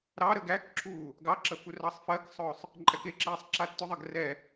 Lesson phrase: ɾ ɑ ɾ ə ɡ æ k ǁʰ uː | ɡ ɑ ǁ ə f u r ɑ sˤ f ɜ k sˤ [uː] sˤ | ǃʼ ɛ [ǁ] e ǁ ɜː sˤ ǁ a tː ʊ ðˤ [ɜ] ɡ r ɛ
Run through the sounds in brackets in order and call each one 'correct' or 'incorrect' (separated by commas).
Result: incorrect, incorrect, correct